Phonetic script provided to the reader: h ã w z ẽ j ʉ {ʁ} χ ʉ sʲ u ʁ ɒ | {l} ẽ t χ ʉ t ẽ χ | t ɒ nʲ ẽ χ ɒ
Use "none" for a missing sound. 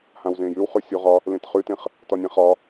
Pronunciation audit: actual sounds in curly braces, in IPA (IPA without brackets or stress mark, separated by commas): w, l